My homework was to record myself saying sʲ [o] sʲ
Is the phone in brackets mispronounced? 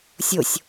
no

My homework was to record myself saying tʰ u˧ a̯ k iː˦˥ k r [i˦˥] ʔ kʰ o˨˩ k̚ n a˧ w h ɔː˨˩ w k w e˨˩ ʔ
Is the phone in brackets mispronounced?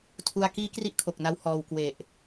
no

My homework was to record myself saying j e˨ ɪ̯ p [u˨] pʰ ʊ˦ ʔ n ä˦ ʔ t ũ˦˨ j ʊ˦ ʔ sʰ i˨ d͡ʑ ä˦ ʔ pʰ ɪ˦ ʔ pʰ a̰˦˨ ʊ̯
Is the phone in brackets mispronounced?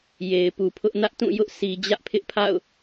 no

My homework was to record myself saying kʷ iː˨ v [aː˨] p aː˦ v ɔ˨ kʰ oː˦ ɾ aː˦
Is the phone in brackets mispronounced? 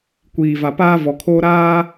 yes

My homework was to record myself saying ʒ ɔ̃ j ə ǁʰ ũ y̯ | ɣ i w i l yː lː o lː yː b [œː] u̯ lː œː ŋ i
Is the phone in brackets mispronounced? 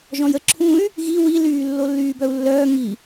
yes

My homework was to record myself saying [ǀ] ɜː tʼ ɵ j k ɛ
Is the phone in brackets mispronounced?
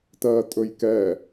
yes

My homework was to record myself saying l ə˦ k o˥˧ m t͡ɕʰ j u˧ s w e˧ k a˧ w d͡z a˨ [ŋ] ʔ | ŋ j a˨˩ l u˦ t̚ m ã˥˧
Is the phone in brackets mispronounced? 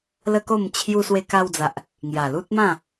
yes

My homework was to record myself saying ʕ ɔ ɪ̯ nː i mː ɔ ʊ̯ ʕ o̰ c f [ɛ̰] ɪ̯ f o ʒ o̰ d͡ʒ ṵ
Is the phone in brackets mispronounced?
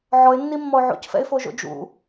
no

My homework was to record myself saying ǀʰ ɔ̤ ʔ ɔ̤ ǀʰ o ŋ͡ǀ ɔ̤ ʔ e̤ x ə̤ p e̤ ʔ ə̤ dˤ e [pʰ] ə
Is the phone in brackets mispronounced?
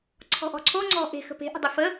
yes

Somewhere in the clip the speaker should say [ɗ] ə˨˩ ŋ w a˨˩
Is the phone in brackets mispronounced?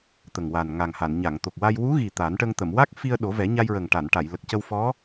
yes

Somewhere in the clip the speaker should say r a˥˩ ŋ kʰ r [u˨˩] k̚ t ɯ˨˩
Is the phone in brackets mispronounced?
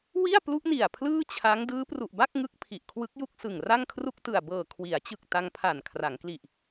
yes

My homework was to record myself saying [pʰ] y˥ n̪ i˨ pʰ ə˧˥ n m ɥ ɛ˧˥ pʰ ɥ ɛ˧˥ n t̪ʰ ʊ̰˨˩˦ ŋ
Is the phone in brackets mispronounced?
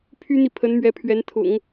no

